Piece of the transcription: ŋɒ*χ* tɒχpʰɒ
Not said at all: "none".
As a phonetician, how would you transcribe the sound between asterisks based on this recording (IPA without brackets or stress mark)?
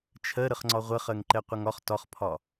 χ